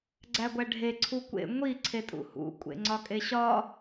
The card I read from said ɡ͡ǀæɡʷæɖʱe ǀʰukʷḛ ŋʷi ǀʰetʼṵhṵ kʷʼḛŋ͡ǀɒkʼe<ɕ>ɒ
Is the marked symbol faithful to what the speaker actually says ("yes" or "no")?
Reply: yes